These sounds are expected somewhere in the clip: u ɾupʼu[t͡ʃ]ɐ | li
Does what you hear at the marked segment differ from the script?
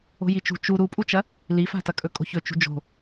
no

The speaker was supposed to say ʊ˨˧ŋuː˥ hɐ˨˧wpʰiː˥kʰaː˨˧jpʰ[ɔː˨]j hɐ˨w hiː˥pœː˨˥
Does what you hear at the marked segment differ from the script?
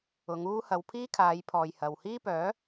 no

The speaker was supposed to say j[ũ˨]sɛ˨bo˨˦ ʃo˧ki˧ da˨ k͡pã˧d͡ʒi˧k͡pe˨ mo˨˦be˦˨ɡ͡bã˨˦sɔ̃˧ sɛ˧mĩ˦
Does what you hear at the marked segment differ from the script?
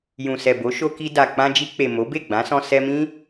no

